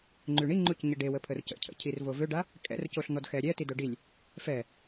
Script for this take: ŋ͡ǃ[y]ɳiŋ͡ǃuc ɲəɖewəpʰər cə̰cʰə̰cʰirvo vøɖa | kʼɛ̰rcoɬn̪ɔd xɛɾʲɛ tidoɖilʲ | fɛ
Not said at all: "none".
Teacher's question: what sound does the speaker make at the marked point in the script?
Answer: y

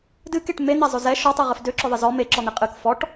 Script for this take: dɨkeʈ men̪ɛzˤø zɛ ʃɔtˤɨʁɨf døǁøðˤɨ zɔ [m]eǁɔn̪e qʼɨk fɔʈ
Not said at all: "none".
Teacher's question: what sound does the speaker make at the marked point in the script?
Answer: m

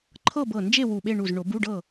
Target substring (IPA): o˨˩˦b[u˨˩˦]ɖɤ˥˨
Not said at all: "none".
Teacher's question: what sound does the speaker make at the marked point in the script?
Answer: u˧˥˧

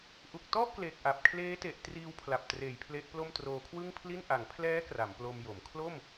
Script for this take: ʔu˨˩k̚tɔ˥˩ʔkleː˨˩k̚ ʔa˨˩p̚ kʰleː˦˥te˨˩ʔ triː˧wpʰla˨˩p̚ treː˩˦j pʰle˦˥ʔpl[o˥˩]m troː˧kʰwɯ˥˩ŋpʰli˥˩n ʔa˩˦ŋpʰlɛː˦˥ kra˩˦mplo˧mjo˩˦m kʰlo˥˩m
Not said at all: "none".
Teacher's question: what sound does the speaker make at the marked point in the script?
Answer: o˥˩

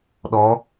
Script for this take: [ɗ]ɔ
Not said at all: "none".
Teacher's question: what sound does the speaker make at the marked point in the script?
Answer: ɗ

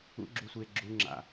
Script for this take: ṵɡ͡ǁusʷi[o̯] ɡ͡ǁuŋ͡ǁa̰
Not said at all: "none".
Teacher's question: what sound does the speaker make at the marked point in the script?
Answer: e̯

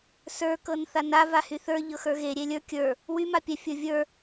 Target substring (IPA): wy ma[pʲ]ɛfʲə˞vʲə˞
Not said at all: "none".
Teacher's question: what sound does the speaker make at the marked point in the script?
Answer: pʲ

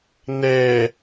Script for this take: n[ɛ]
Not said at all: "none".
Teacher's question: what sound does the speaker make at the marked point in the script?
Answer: ɛ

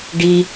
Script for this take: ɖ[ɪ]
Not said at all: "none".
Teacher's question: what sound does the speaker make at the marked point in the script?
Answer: i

